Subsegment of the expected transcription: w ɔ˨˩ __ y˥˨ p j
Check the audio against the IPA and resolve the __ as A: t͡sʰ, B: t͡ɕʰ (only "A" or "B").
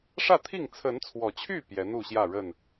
B